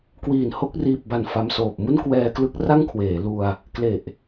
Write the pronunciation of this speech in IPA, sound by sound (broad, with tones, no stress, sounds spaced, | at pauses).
k w iː˨˩ n h o˦˥ k̚ r iː˨˩ p̚ b a˨˩ n f a˧ m s oː˨˩ p̚ m u˥˩ n k w ɛː˧ k l ɯ˦˥ k̚ r a˥˩ ŋ kʰ w eː˩˦ l u˧ a̯ | k l e˨˩ ʔ